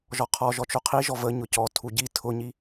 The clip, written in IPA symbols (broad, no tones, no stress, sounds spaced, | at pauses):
ʒ ɔ qʰ ɔ ʒ ɔ t͡ʃ o qʰ i ʒ ɔ v ə ɲ ʊ c ɔ tʰ u ɟ i tʰ ʊ ɲ i